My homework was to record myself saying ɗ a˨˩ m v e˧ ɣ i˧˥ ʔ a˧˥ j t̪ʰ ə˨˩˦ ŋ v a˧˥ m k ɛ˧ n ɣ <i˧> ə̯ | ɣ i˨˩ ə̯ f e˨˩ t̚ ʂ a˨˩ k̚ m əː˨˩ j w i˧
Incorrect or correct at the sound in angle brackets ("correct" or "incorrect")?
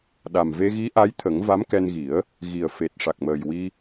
incorrect